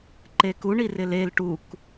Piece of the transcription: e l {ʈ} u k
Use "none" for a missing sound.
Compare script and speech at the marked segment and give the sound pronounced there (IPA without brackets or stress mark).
ʈ